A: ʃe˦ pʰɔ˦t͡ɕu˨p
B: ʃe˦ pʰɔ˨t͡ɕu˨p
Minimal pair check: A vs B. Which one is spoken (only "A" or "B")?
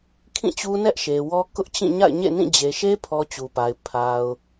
A